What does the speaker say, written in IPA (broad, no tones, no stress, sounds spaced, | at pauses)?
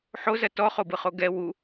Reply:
ħ o z ɐ t ɔ χ o b ɯ χ o ɡ ɛ w u